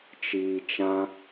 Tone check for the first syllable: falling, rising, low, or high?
low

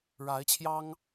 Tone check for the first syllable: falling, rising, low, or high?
rising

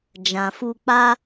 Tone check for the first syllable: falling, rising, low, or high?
low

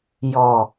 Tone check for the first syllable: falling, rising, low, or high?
low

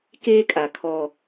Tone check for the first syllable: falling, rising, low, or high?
high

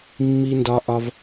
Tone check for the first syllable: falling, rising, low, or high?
high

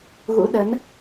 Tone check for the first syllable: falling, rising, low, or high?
rising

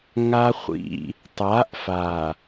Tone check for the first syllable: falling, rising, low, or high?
high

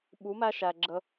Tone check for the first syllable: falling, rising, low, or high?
rising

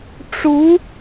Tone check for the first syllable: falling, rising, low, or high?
rising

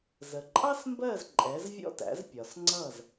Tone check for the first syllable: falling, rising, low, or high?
low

